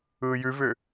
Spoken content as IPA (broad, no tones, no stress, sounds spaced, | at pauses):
ɯː j ʉ v ʏː